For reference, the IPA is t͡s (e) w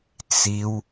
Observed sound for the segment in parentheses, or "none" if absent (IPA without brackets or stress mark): i